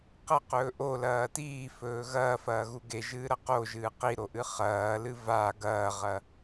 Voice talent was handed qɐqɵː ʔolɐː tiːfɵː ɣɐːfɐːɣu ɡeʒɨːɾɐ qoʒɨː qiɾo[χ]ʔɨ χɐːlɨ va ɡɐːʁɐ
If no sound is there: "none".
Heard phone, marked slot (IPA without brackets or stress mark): none